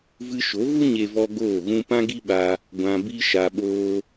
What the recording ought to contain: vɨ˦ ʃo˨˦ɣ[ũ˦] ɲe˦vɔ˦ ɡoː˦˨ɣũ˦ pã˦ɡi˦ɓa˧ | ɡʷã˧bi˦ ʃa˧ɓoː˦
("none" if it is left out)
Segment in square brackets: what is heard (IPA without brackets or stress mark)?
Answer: u˦